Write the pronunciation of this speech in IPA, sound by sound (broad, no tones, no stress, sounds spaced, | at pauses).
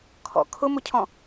kʰ ɔ̰ kʰ ʊ m ʊ cʰ ɔ̃